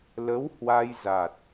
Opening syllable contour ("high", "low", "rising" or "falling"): rising